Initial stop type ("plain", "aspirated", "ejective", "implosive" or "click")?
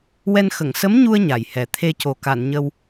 aspirated